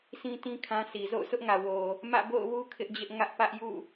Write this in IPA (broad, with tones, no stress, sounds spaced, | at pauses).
s ĩ˦ t ĩ˦ kʰ ã˦ sʰ i˨ z o̰˦˨ ʊ̯ s ʊ˦ ʔ ŋ ä˨ w o˨ | m ä̰˦˨ b o̰˦˨ ʊ̯ w u˦ kʰ ɪ˦ ʔ d͡ʑ ɪ˦ ʔ ŋ ä˦ ʔ p ä˦ ʔ j ṵ˦˨